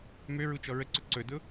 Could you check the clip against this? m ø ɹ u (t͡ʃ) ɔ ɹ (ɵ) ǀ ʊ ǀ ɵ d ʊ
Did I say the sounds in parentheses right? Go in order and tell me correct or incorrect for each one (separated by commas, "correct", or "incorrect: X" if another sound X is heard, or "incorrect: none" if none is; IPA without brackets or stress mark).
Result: correct, incorrect: ə